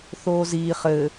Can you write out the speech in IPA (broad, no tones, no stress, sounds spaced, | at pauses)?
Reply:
θ oː z iː χ ɘː